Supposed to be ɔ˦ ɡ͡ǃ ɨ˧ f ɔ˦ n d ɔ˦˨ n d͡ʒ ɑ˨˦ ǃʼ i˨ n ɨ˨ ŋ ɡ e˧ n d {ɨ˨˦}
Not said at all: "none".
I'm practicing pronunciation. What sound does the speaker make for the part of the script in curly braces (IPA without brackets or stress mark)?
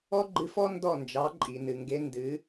ɨ˨˦